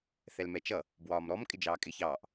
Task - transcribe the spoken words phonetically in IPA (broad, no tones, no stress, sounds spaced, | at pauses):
θ ɛ l m ɛ t͡ʃ ʌ | b w ɒː m ɾ ɔ m kʼ ɪ d͡ʒ ɑː kʼ ɪ ç ɑː ʔ